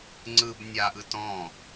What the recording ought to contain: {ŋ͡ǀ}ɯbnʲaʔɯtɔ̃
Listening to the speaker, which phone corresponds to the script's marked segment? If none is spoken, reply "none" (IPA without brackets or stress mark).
ŋ͡ǀ